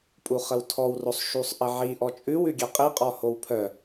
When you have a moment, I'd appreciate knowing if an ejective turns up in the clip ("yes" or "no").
yes